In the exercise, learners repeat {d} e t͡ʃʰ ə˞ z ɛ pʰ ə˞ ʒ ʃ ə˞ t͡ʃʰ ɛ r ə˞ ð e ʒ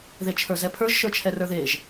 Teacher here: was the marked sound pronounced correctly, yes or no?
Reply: no